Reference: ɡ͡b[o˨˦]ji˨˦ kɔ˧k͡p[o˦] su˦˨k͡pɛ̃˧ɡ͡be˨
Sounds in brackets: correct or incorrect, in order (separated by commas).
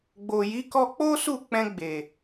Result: incorrect, correct